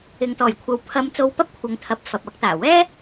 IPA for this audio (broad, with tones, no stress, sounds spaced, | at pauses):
ɪ˨ ŋ t̪ ɔː˨˩ j kʷʰ ɐ˨˧ w pʰ ɐ˧ m t͡s o˧ w p ɐ˥ p̚ kʷʰ ɐ˧ ŋ t̪ʰ ɐ˧ p̚ f ɐ˨ p̚ ɐ˨˥ k̚ t̪ aː˨˩ w ɛː˥